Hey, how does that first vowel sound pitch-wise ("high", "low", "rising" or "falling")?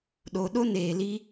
low